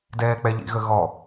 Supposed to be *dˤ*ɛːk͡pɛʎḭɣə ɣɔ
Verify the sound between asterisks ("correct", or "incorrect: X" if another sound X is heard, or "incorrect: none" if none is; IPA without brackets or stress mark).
incorrect: d